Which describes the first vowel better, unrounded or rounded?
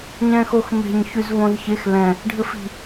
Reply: unrounded